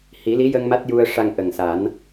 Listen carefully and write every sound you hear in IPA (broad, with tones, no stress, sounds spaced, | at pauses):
h i˨˩˦ l i˧˥ j ə˧ ŋ m a˦˥ t̚ j u˧ ə̯ ʂ a˧ ŋ ʔ ə˨˩ ŋ s a˨˩˦ n